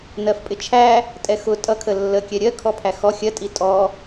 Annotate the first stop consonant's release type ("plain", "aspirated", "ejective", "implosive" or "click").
ejective